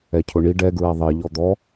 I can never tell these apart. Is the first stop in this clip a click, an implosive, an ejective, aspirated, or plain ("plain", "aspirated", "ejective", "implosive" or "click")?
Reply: aspirated